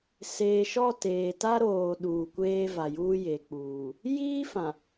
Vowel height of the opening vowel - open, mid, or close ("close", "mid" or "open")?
mid